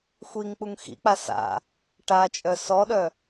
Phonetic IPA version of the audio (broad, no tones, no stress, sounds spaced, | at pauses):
xʷ i ŋ k͡p u ŋ x ḭ k͡p a s a̰ | ʈ a t͡ʃʼ œ s ɔ ɗ œ